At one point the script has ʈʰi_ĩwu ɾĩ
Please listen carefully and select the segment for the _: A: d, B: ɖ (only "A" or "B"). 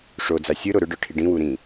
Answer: B